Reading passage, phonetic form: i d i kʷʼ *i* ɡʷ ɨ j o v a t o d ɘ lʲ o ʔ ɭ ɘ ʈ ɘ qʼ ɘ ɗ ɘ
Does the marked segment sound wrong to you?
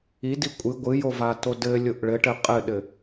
yes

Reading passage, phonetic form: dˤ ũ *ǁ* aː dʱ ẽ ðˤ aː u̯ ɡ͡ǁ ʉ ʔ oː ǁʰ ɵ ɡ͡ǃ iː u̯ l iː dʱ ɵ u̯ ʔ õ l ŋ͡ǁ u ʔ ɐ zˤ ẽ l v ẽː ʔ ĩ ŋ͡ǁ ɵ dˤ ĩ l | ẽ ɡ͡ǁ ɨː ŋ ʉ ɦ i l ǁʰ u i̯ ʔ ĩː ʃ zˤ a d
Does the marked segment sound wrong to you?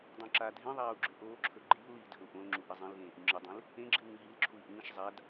no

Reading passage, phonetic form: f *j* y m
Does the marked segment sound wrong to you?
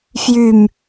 no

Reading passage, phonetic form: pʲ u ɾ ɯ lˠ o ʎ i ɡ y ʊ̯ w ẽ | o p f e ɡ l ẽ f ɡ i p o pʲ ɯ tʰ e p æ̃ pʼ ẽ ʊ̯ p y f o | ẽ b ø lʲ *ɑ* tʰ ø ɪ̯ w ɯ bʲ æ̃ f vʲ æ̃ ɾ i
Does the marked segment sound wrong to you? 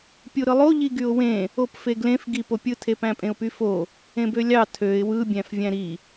no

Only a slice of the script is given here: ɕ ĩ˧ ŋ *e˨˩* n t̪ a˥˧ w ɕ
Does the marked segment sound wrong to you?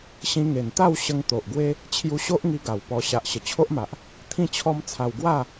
no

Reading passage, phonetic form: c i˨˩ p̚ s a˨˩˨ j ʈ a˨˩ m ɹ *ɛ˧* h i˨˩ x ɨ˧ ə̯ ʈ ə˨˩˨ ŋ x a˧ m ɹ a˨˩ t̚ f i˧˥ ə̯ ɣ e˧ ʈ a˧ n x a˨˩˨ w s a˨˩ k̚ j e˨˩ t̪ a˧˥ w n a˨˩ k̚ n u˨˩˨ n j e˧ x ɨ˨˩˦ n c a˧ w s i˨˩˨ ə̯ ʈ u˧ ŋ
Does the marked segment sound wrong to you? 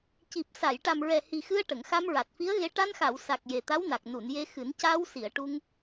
yes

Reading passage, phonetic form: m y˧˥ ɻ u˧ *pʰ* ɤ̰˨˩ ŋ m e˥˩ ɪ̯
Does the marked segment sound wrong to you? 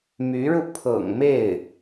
no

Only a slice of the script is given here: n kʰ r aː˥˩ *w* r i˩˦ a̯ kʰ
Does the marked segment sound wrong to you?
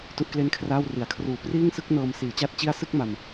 no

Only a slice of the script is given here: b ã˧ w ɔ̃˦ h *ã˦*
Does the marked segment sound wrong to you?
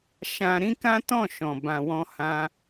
no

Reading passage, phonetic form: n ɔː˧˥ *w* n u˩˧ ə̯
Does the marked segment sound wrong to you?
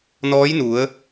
yes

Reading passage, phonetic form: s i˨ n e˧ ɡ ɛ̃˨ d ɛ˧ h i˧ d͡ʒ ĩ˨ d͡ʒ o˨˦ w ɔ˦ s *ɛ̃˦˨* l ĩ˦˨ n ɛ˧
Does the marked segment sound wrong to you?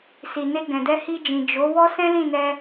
yes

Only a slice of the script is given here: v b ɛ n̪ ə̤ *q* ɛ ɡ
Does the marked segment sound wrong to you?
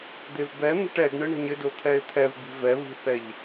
yes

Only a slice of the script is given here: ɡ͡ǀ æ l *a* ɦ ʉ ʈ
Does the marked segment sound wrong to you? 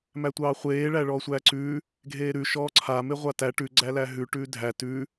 yes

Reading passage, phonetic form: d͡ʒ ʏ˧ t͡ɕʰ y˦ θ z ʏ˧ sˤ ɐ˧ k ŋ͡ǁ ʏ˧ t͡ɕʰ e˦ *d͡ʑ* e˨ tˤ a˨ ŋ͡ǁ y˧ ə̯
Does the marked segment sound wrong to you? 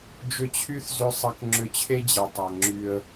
no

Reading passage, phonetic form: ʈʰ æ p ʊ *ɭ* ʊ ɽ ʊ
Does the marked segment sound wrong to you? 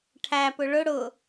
no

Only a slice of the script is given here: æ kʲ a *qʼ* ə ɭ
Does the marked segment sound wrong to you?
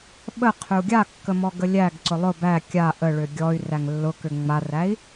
yes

